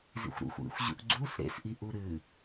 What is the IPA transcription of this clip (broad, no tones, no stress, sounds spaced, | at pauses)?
z ḭ xʷ ɾ ṵ xʷ ḭ xʷ ʑ ṵ ʔ ɡ͡ǀ u s ɾ ḛ s ʔ i ʔ u ɾ ɨ